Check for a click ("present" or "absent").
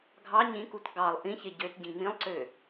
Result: present